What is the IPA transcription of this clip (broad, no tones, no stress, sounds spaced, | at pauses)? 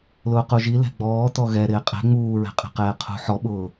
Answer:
l ʊː q u ʒ i l ɛ̤ ɡ͡b ɔː t ɔ ɣ ɛ ɾ ɪː qʼ ɛ̤ ŋ͡m uː ɹ ɛ̤ qʼ ɛ̤ q ɛː qʰ ṳ ħ ɔ ɓ ʊː